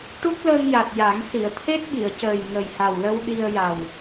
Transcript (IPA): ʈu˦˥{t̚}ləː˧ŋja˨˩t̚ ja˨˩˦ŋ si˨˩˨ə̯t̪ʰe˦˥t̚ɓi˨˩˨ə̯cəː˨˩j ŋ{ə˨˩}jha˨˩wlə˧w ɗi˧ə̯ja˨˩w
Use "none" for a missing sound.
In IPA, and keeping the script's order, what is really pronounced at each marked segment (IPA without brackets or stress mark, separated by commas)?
k̚, ə˨˩